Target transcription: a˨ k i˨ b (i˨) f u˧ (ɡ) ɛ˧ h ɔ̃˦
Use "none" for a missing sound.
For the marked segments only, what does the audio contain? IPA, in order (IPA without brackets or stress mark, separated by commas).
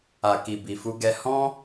i˨, ɡ